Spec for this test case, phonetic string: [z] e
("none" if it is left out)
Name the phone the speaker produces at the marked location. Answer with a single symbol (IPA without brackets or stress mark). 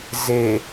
z